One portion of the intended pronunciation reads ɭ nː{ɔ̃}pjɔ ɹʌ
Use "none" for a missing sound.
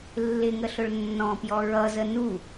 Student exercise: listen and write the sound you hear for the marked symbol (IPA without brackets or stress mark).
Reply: ɔ̃